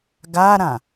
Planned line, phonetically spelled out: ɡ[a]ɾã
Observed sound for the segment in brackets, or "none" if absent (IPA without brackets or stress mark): a